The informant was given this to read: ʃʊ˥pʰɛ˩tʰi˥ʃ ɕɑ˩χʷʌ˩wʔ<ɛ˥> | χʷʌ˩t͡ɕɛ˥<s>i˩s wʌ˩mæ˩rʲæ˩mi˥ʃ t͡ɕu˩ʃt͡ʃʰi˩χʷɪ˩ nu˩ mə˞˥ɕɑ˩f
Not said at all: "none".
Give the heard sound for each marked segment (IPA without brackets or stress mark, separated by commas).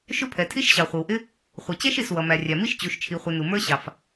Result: ɪ˥, ʃ